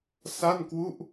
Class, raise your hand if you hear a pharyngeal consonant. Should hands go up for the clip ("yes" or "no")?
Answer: no